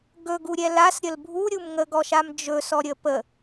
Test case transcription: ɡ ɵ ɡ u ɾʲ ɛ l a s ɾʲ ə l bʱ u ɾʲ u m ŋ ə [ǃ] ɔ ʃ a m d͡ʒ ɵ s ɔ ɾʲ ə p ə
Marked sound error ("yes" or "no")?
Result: yes